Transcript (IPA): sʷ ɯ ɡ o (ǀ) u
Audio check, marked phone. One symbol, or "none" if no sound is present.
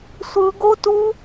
t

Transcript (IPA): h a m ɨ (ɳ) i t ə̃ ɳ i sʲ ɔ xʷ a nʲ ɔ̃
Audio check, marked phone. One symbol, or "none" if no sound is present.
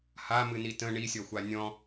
n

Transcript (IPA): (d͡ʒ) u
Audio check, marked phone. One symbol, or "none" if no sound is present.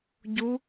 ɟ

